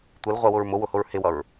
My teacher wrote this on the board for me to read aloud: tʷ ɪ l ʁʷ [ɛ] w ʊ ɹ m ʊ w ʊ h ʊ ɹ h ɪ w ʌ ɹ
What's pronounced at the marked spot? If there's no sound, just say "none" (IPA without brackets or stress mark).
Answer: ɛ